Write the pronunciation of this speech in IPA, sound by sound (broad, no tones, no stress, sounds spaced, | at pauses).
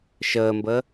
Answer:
ʃ əː m b ə